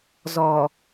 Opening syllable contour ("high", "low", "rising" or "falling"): low